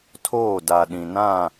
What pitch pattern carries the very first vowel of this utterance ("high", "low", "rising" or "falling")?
falling